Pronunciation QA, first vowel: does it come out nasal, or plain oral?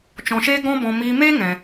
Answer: nasal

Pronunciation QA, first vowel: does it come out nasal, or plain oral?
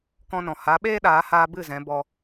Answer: nasal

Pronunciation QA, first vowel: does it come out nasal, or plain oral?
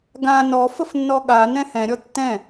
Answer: nasal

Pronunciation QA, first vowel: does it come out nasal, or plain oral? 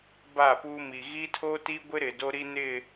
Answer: oral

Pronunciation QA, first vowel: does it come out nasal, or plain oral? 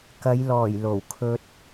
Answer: oral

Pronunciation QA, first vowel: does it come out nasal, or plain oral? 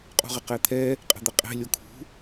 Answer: oral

